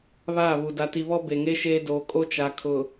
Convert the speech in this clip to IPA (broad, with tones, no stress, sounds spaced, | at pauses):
β aː˦˨ β u˨ d a˨ t i˨ β ɔ˦ b e˨ ŋ e˦ ʃ eː˦ d oː˨ kʼ o˦ t͡ʃ a˨ kʰ ʊ˨